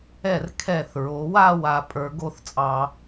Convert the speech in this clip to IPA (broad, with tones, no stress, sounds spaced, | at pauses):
ɛ˧˩ r kʰ ɛ˧˩ θ ɹ o˩˧ w a˥˧ w a˧˩ pʼ ə˞˩˧ ɡ o˥˧ θ t͡sʼ ɑ˧